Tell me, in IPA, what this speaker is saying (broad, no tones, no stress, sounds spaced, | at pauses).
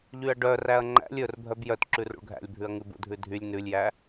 ʎ y ɐ̯ ɖ œ r æ ɐ̯ ŋ͡ǃ æ̰ lʲ ɵ r bʱ œ b j œ t ǁ ʉ r ṵ ɭ ɡʱ æ̰ lʲ bʱ ʉ ɐ̯ ŋ ʉ b ṵ dʱ ʉ dʱ y lʲ n ʉ lʲ j æ